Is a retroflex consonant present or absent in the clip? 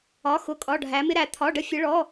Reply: present